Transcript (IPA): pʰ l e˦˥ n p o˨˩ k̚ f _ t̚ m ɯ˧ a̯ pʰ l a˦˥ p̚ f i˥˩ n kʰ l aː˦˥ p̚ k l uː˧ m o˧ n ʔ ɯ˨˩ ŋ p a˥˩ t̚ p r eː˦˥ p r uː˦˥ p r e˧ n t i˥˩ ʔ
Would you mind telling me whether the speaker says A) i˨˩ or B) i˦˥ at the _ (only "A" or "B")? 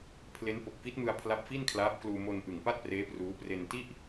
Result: B